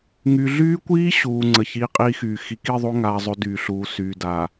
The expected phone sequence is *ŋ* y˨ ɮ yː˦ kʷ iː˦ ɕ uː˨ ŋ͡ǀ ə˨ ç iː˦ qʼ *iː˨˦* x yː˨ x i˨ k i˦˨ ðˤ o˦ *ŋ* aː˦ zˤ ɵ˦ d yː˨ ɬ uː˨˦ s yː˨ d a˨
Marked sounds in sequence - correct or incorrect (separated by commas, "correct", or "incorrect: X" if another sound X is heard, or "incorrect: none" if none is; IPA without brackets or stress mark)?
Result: correct, incorrect: iː˦, correct